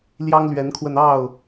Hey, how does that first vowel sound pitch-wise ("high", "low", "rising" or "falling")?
high